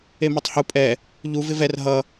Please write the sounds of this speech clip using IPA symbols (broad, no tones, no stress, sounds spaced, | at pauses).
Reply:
e m a tˤ h u pʼ ɛ | ʎ u v ɪ v ɛ r ɦ ʌ